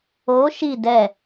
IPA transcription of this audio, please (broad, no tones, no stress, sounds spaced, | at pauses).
o ʃ i d ɛ